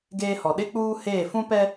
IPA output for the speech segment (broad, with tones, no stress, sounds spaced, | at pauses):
ɡ eː˦ h ɔ˨ ɗ ɪ˦ k͡p uː˦ h eː˦˨ f ũ˦ p ɛ˦